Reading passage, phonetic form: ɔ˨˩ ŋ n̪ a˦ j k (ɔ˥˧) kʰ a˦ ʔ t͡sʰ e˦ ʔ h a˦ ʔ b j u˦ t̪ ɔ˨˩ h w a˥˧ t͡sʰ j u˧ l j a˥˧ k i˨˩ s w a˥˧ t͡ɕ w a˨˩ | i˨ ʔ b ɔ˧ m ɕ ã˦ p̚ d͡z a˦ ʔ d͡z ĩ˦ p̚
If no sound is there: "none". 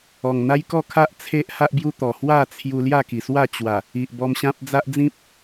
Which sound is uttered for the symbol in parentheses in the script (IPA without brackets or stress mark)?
ɔ˥˧